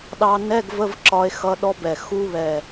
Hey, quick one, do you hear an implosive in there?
yes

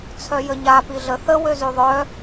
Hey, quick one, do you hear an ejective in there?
no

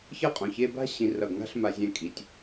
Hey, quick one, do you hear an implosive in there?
no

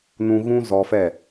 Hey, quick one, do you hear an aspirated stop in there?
no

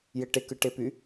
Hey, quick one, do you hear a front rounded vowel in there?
yes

